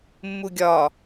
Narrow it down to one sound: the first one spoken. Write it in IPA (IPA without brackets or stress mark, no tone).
mː